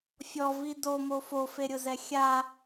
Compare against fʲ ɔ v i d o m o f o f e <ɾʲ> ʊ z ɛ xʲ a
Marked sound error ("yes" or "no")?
no